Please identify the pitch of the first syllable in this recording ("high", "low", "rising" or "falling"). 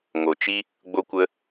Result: low